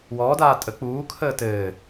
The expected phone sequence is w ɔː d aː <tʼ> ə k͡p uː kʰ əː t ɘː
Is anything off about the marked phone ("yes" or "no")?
no